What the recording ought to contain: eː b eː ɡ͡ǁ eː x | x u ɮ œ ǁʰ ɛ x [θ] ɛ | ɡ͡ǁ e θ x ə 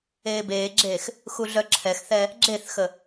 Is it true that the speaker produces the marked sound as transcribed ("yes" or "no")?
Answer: yes